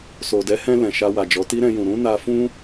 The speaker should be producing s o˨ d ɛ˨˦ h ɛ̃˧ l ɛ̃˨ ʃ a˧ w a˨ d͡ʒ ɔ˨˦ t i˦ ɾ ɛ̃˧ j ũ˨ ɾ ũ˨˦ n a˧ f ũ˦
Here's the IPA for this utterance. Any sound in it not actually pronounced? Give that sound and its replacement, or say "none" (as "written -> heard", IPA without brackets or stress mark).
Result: none